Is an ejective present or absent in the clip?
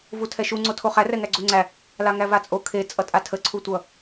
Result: present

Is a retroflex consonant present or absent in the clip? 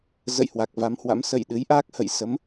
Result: absent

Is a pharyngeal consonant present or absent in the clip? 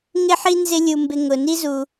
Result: present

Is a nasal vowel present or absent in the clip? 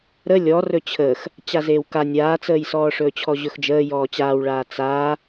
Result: absent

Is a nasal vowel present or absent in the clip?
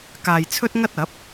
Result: absent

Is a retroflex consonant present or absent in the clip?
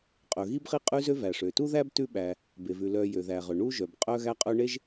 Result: present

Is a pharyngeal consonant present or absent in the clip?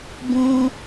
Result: absent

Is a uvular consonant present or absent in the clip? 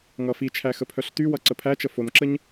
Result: absent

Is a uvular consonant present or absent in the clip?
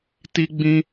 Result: absent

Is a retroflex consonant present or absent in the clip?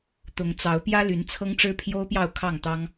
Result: present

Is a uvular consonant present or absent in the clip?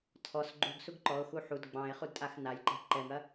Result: present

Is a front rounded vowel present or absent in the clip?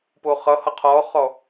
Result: absent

